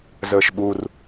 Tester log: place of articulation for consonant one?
alveolar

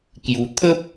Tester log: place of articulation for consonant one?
velar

